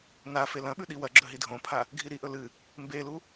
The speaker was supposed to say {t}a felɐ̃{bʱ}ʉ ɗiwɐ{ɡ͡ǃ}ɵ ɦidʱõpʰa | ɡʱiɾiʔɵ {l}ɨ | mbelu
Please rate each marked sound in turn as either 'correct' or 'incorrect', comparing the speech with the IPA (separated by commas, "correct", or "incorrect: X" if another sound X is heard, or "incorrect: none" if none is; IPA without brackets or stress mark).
incorrect: n, incorrect: ɓ, incorrect: ɡ͡ǁ, correct